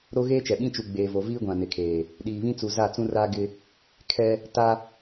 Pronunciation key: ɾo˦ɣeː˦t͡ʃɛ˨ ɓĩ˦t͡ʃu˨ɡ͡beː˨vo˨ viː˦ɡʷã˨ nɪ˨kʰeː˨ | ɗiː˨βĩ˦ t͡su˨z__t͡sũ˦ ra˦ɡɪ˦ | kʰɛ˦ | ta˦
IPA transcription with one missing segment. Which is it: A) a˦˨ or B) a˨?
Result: A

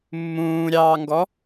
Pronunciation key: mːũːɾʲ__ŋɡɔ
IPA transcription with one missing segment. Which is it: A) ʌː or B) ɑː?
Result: B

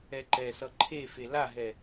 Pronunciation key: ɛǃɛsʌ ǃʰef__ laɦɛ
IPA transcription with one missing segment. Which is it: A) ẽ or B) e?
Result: B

